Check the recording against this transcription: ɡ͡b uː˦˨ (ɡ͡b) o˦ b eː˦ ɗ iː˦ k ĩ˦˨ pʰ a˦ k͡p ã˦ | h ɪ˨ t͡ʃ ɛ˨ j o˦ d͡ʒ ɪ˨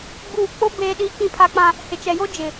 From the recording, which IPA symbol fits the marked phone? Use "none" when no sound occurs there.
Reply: k͡p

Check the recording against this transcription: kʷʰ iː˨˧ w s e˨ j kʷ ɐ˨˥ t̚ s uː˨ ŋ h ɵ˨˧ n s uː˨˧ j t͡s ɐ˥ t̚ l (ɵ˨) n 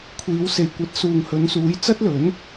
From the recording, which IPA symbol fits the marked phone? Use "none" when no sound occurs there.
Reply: ɵ˨˥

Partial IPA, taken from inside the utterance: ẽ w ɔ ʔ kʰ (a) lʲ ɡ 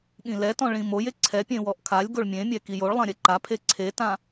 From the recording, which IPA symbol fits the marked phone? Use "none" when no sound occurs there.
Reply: a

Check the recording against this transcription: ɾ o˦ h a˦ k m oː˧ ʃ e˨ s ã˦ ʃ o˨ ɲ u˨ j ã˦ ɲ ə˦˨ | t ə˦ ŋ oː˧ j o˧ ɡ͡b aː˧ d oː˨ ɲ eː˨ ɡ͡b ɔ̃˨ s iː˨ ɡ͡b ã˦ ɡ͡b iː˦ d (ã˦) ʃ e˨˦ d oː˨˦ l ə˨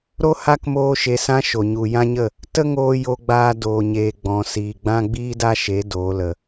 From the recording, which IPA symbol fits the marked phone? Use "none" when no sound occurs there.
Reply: a˦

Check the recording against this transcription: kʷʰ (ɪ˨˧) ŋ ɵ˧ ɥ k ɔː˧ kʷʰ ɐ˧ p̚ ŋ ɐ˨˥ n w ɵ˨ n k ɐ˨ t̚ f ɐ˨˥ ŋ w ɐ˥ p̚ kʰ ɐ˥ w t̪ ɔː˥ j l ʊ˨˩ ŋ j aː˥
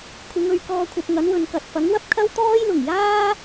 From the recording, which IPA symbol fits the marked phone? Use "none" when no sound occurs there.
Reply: ɪ˨˧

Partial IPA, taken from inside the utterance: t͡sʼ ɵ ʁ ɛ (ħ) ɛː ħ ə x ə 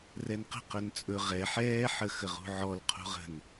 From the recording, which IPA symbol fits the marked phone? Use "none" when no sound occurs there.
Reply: ħ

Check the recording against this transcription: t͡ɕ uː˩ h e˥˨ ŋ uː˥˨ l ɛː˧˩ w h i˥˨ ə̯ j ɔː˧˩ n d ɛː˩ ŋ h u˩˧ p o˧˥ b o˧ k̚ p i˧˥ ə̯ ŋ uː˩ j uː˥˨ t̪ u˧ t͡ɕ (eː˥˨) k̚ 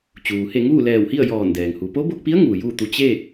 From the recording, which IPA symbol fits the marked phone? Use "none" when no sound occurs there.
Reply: eː˥˨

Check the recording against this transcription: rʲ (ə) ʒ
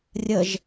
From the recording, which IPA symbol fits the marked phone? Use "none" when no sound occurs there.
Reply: ə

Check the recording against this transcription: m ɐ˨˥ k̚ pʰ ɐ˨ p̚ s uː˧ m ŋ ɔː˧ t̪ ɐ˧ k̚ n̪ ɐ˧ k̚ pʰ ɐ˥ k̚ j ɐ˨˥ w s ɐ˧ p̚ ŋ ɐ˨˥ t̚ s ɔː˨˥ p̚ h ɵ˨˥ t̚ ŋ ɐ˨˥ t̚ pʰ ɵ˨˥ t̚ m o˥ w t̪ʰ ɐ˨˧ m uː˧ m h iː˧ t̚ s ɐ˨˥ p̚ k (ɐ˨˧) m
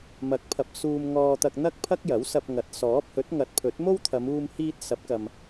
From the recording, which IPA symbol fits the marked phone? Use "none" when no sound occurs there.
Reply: ɐ˨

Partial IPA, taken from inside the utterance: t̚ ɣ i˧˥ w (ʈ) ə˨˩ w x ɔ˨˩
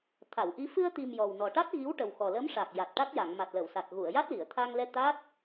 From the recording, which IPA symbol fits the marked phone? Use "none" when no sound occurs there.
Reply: ʈ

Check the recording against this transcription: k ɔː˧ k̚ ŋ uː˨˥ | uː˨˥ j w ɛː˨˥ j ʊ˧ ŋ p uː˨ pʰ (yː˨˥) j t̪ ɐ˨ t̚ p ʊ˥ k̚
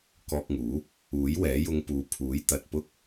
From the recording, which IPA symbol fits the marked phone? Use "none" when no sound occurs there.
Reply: uː˨˥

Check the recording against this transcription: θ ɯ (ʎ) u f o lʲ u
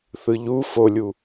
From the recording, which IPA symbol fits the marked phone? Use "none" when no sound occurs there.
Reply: ʎ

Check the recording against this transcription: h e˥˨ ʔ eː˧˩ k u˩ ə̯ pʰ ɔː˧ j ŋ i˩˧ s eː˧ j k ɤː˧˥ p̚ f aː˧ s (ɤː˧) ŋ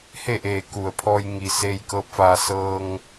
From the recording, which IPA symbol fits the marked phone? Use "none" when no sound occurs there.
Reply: ɤː˧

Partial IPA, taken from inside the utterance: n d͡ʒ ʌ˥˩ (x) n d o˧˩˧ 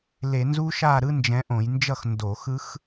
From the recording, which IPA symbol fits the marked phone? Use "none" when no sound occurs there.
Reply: x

